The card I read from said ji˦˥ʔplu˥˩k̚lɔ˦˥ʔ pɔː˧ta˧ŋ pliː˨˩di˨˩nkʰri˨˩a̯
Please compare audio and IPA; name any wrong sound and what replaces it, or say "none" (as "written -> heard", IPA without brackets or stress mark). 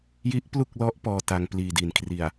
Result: none